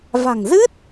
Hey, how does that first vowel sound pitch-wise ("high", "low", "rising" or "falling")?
low